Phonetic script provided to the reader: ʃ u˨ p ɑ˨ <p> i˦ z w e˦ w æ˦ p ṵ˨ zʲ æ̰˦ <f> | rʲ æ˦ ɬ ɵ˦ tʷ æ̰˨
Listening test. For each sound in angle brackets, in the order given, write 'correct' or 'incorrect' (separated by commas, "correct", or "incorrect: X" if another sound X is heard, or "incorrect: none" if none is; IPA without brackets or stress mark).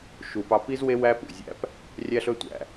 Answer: correct, incorrect: p